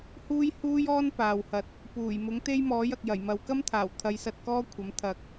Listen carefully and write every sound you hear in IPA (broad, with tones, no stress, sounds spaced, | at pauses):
h uː˥ j h uː˥ j ɔː˥ n p aː˨ w h ɐ˧ t̚ | p uː˨˩ j m ʊ˨˥ ŋ t̪ e˥ j m ɔː˨˥ j ɐ˨ k̚ j ɐ˨˩ j m ɐ˨˧ w k ɐ˥ m t̪ʰ aː˨˩ w t̪ʰ ɐ˨˧ j s ɐ˧ t̚ k ɔː˥ kʷʰ ɐ˨˥ m t̪ʰ ɐ˧ k̚